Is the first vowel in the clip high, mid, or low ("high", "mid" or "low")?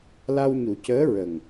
low